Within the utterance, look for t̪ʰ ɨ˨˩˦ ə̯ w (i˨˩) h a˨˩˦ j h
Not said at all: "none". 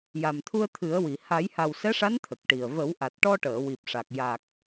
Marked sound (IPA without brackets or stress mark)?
i˨˩